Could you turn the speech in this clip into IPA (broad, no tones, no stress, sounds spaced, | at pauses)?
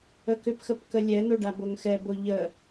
ə k ʏ p x ə p k ə lʲ ɛ n̪ o ɖ a b o ŋ x ɛ b o ʎ ə